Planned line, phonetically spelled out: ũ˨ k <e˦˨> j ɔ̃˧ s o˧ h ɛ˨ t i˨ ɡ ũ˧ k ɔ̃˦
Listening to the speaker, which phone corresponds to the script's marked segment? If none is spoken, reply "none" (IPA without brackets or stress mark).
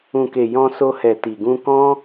e˨